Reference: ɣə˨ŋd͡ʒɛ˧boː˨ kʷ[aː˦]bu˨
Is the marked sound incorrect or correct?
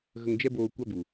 incorrect